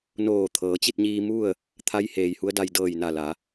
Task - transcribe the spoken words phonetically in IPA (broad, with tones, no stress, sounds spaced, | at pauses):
n oː˧˩ t̪ʰ ɤː˩˧ t͡ɕ i˥˨ t̚ ɲ iː˧ m u˥˨ ə̯ | t̪ʰ a˧˥ j h eː˩ j h u˧˥ ə̯ d a˧ j d ɤː˧˩ j n a˧˩ l a˩˧